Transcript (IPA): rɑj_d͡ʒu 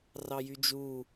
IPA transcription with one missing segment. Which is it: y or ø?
y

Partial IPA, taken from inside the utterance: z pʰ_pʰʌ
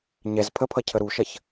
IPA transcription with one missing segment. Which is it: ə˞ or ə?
ə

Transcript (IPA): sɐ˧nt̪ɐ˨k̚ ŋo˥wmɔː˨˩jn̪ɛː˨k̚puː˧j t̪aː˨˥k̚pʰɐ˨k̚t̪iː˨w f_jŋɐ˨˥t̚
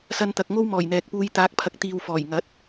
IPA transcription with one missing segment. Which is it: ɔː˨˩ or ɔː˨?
ɔː˨˩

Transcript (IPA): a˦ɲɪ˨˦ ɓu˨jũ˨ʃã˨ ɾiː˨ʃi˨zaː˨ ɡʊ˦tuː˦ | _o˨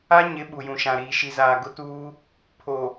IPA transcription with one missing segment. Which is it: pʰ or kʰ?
pʰ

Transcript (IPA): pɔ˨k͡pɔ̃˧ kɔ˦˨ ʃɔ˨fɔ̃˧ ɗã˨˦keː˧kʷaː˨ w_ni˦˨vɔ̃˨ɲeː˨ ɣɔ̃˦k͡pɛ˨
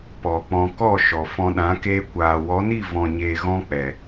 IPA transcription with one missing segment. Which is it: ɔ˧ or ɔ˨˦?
ɔ˨˦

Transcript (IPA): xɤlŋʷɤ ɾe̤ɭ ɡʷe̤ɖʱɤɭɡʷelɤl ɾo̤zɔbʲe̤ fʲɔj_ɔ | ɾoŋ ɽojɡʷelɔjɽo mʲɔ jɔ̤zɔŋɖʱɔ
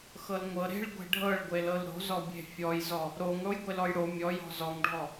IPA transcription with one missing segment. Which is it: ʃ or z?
z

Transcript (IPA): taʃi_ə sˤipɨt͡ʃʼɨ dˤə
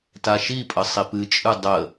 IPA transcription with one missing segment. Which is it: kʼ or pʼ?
pʼ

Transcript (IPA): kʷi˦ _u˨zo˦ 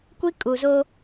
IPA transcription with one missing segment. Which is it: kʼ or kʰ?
kʼ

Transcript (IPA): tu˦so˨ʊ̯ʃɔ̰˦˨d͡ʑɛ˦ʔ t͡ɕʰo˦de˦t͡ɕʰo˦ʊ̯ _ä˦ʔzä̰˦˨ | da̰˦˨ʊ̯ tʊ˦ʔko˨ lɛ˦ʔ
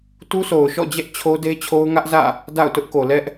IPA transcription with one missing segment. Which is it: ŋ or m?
ŋ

